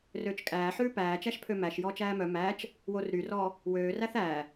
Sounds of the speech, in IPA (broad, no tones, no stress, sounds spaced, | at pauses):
r øː t͡ʃ kʼ æː ħ ʉː p æː t͡ʃ æ ʃ pʰ ø m æ ʃ j ɔː t͡ʃ æː m œ m æː t͡ʃ | w o r ɾ y r ɔː | w øː r æ θ æː